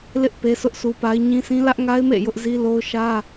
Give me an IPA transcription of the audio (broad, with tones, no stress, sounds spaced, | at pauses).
l ɪ˦ ʔ p e˦ sʰ ʊ˦ ʔ s u˦ p a˦ ɪ̯ ɲ ĩ˦ s ĩ˦ l ä˦ ʔ ŋ a˦ ɪ̯ m ḛ˦˨ j ʊ˦ ʔ z i˦ l o˦ ʊ̯ ʃ ä˦